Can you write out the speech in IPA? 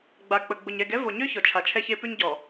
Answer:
ɡ͡b a˨ k͡p ə˨ ɡ͡b ʊ˨ ɲ ɛ˨ ɡ ɛ˦ v o˨ ɲ ø˦ ç ɔ˨ t͡ʃʰ a˨ t͡ʃʰ ɛ˦ ç e˦ p ʉ˦ ɲ ɟ ɔ˨

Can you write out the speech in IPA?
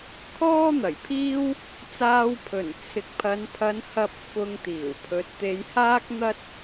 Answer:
kʰ ɔː˥ n̪ ɐ˨˩ j pʰ iː˥ w | t͡s aː˧ w pʰ ɵ˨˩ n t͡sʰ ɪ˨ k̚ pʰ ɐ˨˧ n pʰ ɐ˨˧ n h ɐ˨ p̚ f ʊ˧ ŋ t̪ iː˨˩ w pʰ ɵ˨˥ t̚ t̪ e˨˧ j h aː˥ k̚ n̪ ɐ˥ t̚

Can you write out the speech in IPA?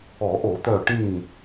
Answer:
ɔ˧˩˧ ʔ o˧˩˧ t̪ œ˧˩ ʈ ĩ˧˩

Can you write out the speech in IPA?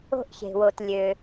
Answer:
o̤˧ ʔ ç e̤˩ w o˩ t lʲ ø˩

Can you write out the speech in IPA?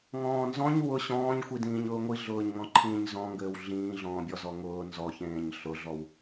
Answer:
ŋ ɔ̃ː n z ɔ̃ ɲ w ʊ ɕ ɔ̃ː ɲ xʷ i d ĩː ɲ ʊː ŋʷ i ɮ ʊː ɲ ŋ ɔ̃ ǃʰ ĩː ɲ z ɔ̃ ŋ ɡ ɘː w ɮ ĩː ɮ ɔ̃ː bʲ ɔ z ɔ ŋ ʊː n z ɔ ç ẽː ɲ ɬ ʊ ɮ ɔ w

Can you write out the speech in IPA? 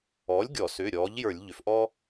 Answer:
ɔ˩˥ lʲ ɡʲ ɔ˧˩˧ s ʏː˩˧˩ ɾʲ ɔː˩˥ ʎ j ə˞˧˩˧ lʲ ʎ ʏ˩˧ f ʔ ɔː˦

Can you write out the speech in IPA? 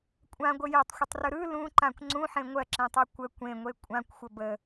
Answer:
kʷʼ ã ɡʷ ə j e tˤ xʷ ə tˤ r ɯ ɾ ɯ l ũ ǃ ã kʷ ŋ͡ǀ ũ ħ ẽ ŋʷ ɜ ǁ ẽ tˤ e kʷ ə kʷ ẽ ŋʷ e kʷʼ ã kʷ xʷ ə b ə

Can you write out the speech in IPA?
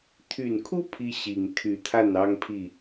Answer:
t̪ʰ y˨˩ n kʰ u˦ pʰ i˦ ɕ i˨˩ ŋ t̪ʰ y˨˦ t̪ʰ a˥˨ n ɑ˦ ŋ pʰ i˥˨

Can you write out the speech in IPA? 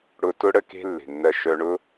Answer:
ɽ ʊ˧ t ʊ˦ ɽ ə˦ k e̤˦ lː e̤˨ nː ɜ˧ ʃ œ˧ ɳ ʊ˦

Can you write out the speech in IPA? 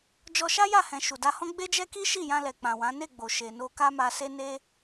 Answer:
d͡ʒ ɔ˧ ʃ a˦ j a˦˨ h ɛ̃˨ ʃ u˨ d a˧ h ɔ̃˦ ɡ͡b e˦ d͡ʒ ɛ˦ k i˦ ʃ i˦˨ j ã˧ l ɛ˨ k͡p ã˨ w ã˨˦ n e˦˨ ɡ͡b o˨ ʃ e˨ n o˧ k a˦ m a˧ s e˦ n e˦

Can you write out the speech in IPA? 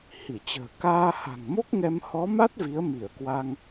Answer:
h i˧˩ t͡ɕ ə̤ː˨˩ k aː˧ h a̤˨˩ ŋ m o˦˥ k̚ ŋ ɛ˧ m h ɔ˨˦ m a˦˥ t̚ v i˨˦ ə̯ m i˧˩ ə̯ k w a˧ ŋ

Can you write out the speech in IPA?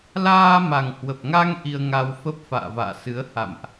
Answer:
l aː˧ m a˨˩ ŋ h w ə˨˩ p̚ ŋ a˧ ŋ ʔ i˧ ə̯ ŋ a˧ w f ə˦˥ p̚ f a̰ː˧˨ v a̰ː˧˨ s ɨ˨˦ ə̯ h a̰˧˨ m ʔ

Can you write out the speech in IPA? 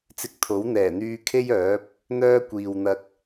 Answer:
t͡s ɪ˧ k̚ t̪ʰ o˨˥ w n̪ ɛː˨˩ n̪ yː˧ kʰ e˥ j œː˨˥ p̚ | n̪ œː˥ kʷ iː˨ w n̪ ɐ˧ k̚

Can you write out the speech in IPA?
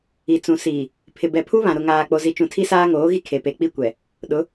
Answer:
i˨ t͡s ũ˨ s iː˨ | pʰ ɪ˨ b ɛ˨ pʰ u˦ β ã˨ ɾ ʊ˨ ŋ aː˨ k͡p o˨ z i˨ t͡ʃ ũ˨ tʰ i˦ s aː˦ ŋ oː˨˦ ɣ i˦ kʰ e˨ p e˨˦ k͡p i˦ kʷ ɛ˨ | ɗ ʊ˨˦

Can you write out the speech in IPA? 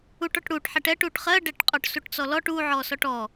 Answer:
u ʈ ɔ ʈ ɽ u ʈ ħ ɛ ʈ ɛ ʈ u ʈ χ ɜ ɖ ɛ ʈ qʼ ɔ ʈ s u ʈ t͡s ɔ l ɔ ʈ u ʕ ɔ s ɔ ʈ ɔ

